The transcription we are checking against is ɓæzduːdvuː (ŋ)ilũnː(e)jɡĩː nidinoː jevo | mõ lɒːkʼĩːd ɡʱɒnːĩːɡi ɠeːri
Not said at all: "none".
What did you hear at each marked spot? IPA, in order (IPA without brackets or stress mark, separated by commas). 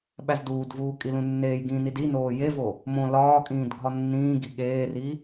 kʼ, eː